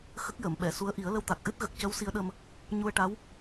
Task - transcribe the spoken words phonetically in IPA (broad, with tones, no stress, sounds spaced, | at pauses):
x ə˦˥ k̚ j əː˨˩˨ m ɓ ɛ˨˩˨ s u˧˥ ə̯ ʔ i˨˩˦ ə̯ l ə˧ w t̪ a˨˩ k̚ ʔ ɨ˦˥ t̚ ɣ ə˨˩ k̚ c ə˧˥ w s i˧˥ ə̯ ɗ ə˧ m | ɲ u˧ ə̯ ʈ a˧˥ w